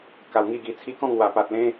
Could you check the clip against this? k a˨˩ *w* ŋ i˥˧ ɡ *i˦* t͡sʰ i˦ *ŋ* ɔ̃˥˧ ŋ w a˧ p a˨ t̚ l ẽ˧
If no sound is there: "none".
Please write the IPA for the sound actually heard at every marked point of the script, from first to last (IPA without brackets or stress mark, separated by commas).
w, i˧, k